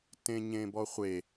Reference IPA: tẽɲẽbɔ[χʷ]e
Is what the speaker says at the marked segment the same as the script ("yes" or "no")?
yes